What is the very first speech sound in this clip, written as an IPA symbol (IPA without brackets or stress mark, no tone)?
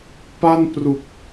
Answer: p